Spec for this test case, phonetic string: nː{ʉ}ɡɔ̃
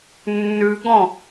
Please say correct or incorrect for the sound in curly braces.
correct